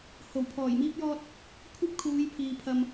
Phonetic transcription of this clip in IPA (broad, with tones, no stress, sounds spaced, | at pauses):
h o˨˩ w pʰ ɔː˨˩ j m iː˥ p̚ j ɔː˥ t̚ | kʷʰ ɐ˥ p̚ kʰ uː˨˧ j pʰ iː˨ pʰ ɐ˧ m